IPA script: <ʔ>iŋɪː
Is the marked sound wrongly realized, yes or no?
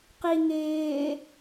yes